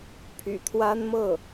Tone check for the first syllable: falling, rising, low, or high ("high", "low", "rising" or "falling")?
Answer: low